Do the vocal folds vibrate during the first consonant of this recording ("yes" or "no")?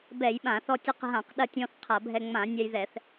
yes